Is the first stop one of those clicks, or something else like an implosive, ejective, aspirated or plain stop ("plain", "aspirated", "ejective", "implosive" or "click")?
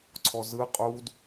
click